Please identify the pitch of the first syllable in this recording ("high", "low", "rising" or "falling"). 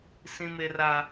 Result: high